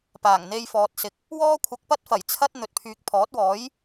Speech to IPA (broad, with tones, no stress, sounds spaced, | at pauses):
p aː˨˩ ŋ n̪ e˧ j f ɔː˨ t̚ s ɪ˨˥ k̚ | w ɔː˥ kʷʰ ɐ˧ k̚ p ɐ˥ t̚ f ɐ˨˩ j t͡sʰ ɐ˥ t̚ n̪ ɵ˨ t̚ pʰ yː˨ k̚ pʰ ɔː˨˥ t̚ w ɔː˨˥ j